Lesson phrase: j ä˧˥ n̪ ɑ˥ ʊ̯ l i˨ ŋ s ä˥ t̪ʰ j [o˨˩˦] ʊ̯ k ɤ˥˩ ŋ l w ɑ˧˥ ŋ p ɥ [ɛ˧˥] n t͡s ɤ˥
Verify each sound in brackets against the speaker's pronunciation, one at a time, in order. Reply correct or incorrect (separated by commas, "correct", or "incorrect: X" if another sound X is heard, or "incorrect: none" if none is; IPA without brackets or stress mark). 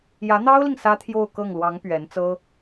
incorrect: o˥˧, correct